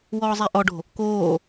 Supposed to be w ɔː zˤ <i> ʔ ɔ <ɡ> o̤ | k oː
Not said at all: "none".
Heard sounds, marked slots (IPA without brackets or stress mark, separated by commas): e, ɖ